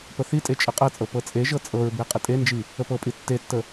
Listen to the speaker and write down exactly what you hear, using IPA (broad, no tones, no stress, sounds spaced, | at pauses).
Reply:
p ə θ i tʼ e t͡ʃʼ ə qʼ ɤ t͡sʼ ɤ p ɤ t͡sʼ e ʒ ɤ t͡sʼ ɤ ɹ b e qʼ ə tʼ e n d͡ʒ i | ə p ɤ pʼ i tː e tː ə